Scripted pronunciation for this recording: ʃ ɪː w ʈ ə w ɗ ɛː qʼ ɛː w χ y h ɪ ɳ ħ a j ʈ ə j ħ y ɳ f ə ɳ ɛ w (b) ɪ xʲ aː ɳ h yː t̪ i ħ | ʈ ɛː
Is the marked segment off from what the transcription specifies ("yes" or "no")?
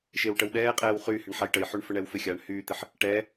yes